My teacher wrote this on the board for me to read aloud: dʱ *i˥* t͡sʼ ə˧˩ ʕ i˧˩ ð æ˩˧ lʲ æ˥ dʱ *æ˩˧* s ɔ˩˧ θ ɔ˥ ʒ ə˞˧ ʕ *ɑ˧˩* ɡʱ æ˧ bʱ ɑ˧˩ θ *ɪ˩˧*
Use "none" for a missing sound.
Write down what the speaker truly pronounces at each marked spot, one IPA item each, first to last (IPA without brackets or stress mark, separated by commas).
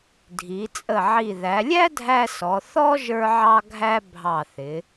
i˩˧, æ˧, ɑ˧, ɪ˩˧